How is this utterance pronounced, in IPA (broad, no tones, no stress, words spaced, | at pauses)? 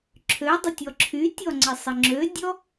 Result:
ǁʰødˤətʲɔ ǁʰytʲɔŋ͡ǀəsˤə ŋ͡ǁødʲɔ